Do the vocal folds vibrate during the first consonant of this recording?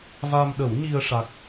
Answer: yes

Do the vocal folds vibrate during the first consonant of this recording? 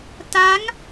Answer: no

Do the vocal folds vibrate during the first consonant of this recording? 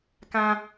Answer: no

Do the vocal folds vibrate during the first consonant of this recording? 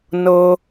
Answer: yes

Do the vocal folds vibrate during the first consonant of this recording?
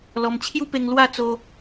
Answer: yes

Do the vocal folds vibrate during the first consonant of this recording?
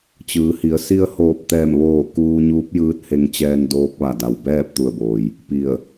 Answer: no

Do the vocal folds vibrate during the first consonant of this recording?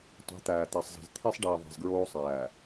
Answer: no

